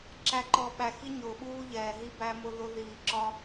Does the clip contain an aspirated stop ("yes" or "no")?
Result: no